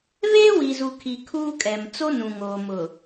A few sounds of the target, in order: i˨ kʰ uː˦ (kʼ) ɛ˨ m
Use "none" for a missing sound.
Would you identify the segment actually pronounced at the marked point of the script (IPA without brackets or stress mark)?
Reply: kʼ